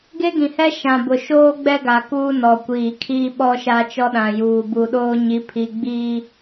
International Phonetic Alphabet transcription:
ɡe˦ɡĩ˨hɛ˦ ʃã˨ bʊ˨ʃoː˦ɡ͡bɛ˦ ɡa˨ kuː˦nɔ˨kʷiː˨ kʰiː˦ɓɔ˦ʃa˦t͡ʃɔ˦ ɗã˨juː˨bu˨ɗoː˦ ɲi˨˦pʰi˨ɡ͡biː˦

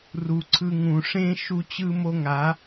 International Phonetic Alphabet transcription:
ru˨ ǀʰɯ˧ ŋũ˨ʂẽ˦ ʃu˧t͡ɕɯ˧mo˧ ŋa˨˦

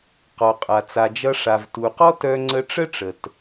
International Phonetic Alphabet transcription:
qɔ˩qʼa˩ t͡sa˩d͡ʒʌ˧ ʂa˩vtu˩ qɔ˥tœ˧ŋ͡ǀə˧ʈ͡ʂə˥ ʈ͡ʂə˩t

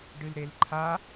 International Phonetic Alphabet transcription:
ɖɨlɾelǃʰa

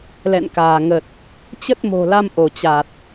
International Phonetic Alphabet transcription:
lɛ̰˧˨nkaː˧˩ŋə˨˩t̚ | t͡ɕə˦˥t̚mo̤˨˩la˧m ʔo˧˩t͡ɕa˨˩t̚

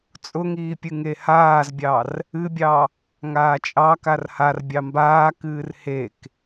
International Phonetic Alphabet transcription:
t͡sʼʊŋiːpʲɨ ŋehaːzbʲɑr | ɨbʲɑ | ŋaːt͡ʃʼɑ karhar bʲɑmbaː kɨːrhek

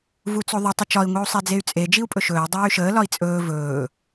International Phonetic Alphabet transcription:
vut͡soðˤu tˤət͡ʃɒi̯ ŋʷiu̯sˤed͡zey̯t͡sʼe d͡ʒiu̯pʼɵʃɵːi̯ dˤɵːy̯ʃəː lɒi̯t͡sʼɵː vɵː

